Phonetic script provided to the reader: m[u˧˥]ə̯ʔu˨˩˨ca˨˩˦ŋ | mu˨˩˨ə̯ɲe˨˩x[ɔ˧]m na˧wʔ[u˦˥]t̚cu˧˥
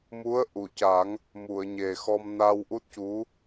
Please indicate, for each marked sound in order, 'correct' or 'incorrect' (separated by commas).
correct, correct, correct